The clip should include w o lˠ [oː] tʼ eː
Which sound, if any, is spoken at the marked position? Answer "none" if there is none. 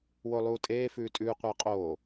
uː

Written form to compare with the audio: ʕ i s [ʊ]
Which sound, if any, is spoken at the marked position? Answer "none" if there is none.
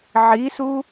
u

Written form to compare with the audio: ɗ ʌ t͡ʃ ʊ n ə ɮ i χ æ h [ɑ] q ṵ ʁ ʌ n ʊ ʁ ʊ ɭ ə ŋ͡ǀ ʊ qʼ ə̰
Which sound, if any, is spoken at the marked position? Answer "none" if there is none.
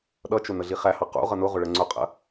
ɑ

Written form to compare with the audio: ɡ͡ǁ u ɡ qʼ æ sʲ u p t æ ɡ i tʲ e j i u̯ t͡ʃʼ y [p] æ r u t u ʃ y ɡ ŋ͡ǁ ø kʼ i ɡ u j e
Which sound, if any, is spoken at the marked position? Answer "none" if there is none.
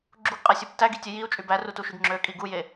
b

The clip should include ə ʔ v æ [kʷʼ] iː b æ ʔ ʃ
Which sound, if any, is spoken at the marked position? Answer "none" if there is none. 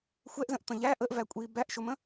kʷʼ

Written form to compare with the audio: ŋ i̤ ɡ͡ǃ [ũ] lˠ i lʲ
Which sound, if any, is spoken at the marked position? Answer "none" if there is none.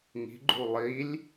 u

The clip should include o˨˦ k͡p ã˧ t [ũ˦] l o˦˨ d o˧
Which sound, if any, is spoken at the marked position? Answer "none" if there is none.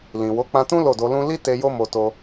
ũ˦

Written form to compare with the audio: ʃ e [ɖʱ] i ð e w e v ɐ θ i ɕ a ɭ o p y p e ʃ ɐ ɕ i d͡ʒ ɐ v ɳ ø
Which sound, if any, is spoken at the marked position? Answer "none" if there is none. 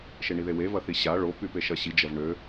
ɳ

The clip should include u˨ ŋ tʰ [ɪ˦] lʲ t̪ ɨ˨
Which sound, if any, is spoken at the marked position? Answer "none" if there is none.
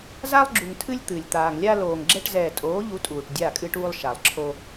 ɨ˦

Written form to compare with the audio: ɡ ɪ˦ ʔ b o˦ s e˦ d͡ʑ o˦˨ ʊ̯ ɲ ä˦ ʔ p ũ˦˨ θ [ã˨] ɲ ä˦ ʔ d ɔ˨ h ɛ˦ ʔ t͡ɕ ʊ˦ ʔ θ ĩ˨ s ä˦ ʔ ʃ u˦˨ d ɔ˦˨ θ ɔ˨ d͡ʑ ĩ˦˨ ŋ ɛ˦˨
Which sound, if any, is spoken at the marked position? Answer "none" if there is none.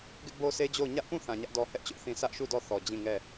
ã˨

